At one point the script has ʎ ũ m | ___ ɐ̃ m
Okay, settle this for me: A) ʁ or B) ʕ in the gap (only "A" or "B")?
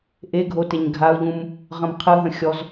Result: A